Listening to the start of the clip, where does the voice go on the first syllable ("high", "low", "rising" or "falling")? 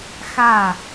falling